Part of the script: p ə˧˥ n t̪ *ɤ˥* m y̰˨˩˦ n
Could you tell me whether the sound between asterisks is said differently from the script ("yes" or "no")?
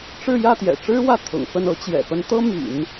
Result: no